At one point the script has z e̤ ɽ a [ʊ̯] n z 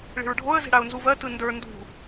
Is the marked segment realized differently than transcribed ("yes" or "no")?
no